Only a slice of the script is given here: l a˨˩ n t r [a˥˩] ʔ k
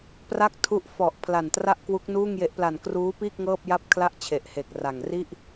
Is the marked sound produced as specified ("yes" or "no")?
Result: yes